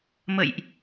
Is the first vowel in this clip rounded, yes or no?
no